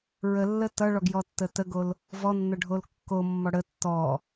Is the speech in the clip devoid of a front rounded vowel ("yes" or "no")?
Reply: yes